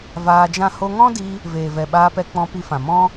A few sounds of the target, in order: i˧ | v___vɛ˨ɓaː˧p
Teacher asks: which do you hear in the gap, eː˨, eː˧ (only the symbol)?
eː˨